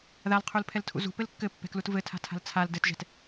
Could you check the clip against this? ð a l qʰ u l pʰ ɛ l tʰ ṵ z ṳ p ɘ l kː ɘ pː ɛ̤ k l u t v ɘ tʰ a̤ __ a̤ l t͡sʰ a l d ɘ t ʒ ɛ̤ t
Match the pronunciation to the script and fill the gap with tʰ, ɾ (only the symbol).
tʰ